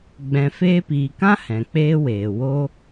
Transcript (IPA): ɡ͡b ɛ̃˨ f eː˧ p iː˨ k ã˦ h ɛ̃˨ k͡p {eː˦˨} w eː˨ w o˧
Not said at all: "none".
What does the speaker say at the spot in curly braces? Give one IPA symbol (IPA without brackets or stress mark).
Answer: eː˦